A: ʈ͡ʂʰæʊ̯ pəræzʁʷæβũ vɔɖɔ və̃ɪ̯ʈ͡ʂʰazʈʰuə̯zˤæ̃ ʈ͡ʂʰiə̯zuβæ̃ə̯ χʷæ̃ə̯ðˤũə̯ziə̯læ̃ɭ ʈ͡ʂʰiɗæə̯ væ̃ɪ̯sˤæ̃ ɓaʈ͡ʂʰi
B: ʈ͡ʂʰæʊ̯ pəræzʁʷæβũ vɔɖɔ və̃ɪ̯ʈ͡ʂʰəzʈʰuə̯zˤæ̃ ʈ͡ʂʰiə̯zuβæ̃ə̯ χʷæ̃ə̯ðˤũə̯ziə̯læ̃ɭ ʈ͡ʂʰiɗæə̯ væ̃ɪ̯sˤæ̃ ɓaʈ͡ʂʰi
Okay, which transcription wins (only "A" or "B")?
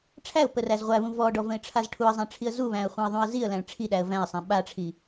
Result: A